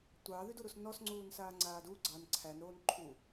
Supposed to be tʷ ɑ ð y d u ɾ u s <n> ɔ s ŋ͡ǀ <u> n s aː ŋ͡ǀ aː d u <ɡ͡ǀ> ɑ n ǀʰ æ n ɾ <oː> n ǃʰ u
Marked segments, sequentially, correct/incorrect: correct, incorrect: uː, correct, correct

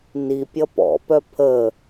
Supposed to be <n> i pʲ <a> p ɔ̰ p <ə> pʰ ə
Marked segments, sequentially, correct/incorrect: correct, incorrect: ʌ, incorrect: œ

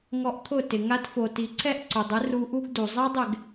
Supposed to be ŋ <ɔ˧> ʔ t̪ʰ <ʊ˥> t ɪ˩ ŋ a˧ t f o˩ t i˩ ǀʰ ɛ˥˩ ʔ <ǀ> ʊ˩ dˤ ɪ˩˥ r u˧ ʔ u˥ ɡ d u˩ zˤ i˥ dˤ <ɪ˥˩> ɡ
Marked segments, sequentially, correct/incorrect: correct, incorrect: ʊ˥˩, correct, correct

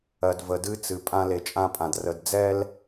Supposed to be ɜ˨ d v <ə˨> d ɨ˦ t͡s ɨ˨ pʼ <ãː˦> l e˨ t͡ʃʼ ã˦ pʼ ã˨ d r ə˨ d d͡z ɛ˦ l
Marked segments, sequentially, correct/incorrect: correct, incorrect: ã˦

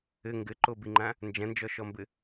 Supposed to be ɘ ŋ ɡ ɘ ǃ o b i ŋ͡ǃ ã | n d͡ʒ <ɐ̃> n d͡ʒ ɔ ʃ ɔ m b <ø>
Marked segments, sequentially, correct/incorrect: correct, incorrect: ɘ

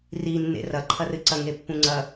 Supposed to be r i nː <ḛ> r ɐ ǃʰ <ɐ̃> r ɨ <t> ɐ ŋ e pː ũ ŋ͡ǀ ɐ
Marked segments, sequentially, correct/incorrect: correct, incorrect: ɐ, incorrect: ǀ

